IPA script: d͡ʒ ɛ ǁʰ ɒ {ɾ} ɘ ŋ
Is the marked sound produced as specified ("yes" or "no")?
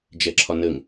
no